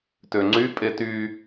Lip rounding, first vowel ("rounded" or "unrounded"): rounded